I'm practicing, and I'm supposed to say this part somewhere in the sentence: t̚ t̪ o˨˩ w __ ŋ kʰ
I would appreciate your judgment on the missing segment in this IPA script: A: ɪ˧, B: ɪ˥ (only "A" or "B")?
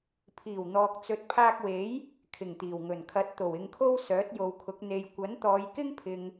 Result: A